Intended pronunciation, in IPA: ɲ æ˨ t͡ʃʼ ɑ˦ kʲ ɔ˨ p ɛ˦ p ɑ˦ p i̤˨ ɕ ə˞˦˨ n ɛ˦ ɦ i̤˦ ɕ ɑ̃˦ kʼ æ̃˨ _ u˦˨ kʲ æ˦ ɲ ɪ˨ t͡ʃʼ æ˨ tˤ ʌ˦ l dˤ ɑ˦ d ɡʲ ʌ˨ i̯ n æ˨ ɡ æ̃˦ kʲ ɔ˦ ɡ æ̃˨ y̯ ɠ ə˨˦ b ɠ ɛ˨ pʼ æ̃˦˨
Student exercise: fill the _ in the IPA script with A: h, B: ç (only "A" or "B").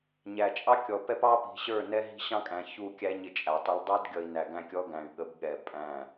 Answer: B